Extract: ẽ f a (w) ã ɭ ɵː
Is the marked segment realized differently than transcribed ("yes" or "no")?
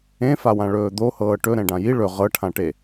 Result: no